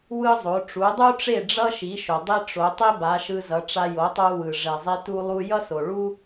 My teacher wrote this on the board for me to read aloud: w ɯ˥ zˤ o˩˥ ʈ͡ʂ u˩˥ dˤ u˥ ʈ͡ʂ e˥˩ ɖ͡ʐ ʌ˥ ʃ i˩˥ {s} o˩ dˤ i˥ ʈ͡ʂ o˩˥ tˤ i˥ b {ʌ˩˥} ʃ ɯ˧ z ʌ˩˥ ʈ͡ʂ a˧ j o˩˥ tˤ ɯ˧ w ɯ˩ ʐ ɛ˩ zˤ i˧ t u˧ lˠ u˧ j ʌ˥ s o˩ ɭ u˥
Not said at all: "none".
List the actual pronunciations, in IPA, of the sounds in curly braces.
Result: ʃ, a˩˥

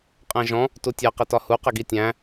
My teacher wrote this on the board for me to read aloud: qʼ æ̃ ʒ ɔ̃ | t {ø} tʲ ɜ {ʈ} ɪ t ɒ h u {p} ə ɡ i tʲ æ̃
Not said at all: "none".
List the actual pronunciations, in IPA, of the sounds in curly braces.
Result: u, q, q

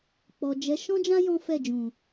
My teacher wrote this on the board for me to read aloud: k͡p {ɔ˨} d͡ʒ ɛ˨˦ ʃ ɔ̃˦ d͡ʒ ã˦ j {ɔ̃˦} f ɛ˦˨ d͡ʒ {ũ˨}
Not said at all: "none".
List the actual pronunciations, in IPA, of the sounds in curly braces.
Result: ɔ˨, ɔ̃˦, ũ˨

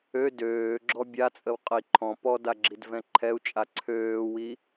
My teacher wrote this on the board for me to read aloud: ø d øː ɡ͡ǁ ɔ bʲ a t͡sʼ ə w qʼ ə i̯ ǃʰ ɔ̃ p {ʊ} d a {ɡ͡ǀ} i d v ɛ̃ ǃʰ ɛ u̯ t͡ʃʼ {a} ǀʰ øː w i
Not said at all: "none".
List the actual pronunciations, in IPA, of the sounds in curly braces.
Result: ɔ, ɡ͡ǁ, a

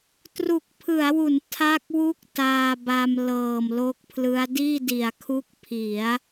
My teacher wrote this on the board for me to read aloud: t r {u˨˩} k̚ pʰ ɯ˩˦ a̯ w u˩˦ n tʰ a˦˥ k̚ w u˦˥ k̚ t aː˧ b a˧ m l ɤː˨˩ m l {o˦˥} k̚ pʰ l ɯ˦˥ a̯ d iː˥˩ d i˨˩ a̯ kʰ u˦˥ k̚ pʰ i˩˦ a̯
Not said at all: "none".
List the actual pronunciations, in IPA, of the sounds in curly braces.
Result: u˨˩, o˦˥

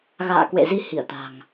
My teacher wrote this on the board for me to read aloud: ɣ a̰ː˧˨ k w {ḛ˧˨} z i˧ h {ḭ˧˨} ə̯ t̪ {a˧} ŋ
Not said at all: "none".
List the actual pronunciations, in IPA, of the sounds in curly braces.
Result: ḛ˧˨, i˧˩, a̤˨˩

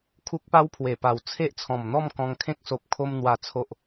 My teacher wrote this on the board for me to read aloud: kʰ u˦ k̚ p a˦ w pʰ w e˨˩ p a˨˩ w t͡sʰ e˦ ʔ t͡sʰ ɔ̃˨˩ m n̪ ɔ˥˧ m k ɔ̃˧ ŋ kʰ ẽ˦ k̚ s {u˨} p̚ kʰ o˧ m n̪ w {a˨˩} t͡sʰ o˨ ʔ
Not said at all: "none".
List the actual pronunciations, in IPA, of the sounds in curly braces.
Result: o˨, a˨˩

